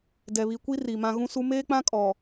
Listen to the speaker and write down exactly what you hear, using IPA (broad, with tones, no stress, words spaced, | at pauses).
dɛ˨βi˨kʷi˦ ri˨mã˦ ɣũ˦su˦ meː˦k͡pã˦kʼɔ˨